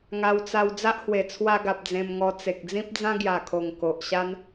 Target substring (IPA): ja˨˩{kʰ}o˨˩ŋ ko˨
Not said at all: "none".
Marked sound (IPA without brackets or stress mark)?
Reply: kʰ